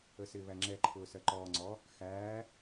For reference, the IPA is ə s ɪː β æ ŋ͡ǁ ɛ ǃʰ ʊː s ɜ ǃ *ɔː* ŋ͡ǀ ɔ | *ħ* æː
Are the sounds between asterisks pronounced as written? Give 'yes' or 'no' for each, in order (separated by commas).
yes, no